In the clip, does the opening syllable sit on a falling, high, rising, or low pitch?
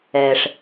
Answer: low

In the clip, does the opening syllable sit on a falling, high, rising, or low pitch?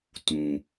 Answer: low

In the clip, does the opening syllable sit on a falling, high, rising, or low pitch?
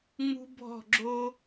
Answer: high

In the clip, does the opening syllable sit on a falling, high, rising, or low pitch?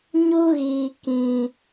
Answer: high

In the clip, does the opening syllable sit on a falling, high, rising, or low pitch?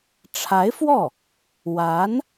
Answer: rising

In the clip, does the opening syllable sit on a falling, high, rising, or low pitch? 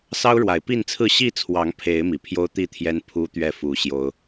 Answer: high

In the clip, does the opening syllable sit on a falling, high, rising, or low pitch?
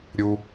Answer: low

